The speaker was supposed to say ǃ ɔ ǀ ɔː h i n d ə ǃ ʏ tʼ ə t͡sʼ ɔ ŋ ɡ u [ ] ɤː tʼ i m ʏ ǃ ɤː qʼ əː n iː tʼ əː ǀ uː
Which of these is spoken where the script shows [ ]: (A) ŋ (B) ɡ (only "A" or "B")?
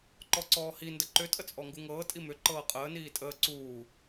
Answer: A